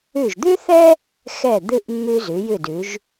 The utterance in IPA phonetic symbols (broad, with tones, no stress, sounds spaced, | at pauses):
ʉ˧˩ ʒ d̪ ʉ˥ θ ɛ˥ | x ɛ˧˩ d̪ ɨ˧ ʔ mː ʉ˧ z ʉ˩˧ j ɨ˧˩ d ʉ˩˧ ʒ